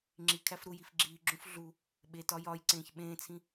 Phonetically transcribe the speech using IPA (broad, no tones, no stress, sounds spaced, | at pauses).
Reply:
ŋ͡ǁ i kʰ æ f ɾ u j i f ɡ͡ǁ iː ɡ͡ǁ ũ f ɮ u | ɓ e t ɒ j ɒ j ǀ ẽː ç ɓ ẽː t͡sʰ ĩ